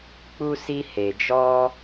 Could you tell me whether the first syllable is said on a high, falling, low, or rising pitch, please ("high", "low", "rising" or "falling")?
high